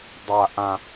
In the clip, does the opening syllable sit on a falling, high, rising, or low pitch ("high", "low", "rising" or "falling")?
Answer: low